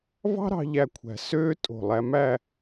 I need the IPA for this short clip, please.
vɑ̤˥ɾɑ̤˧ ʎæ˥˧kʷʰæ̤˧ søː˥ tʼo̤˧˩ lˠæ˧mæ˥˧

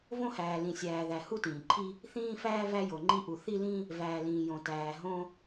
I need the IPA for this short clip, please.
võ˦hæː˩ lĩ˩sʲæː˩ðæ˩ hu˦tĩː˩ǃʰi˦ | θĩː˦ fæː˦ væ˦jo˩ŋ͡ǃi˦ʔu˩ θi˦lĩ˦ | væː˩lĩː˩ jõ˩tæː˩ ɦõ˦

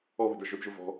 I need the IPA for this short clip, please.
ɔβə̤də˞ ʒɵdʒʊ vɔ̤

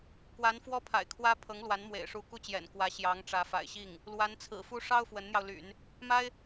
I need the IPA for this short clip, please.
kwa˧˥n fwɔ˥pʰa̰˨˩ɪ̯kʰwä˥ pʰɤ˧˥ŋlwa˧˥nmwḛ˨˩ɪ̯ ʂu˧˥ku˥˩t͡ɕjɛ̰˨˩n kwä˧˥ɕjɑ˧˥ŋʈ͡ʂä˧˥ fa̰˨˩ɪ̯ɕi˥˩ŋ | lwa˧˥nt͡sʰɹ̩˨˩ fu˥ ʂɑ˥ʊ̯ fwə˧˥nn̪jɑ˧ʊ̯ly̰˨˩˦n | ma˥ɪ̯

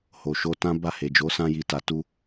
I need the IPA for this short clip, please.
ho˨ʃo˧tã˦ ba˦˨he˨d͡ʒo˨˦ sã˧ji˨ta˨ tu˧

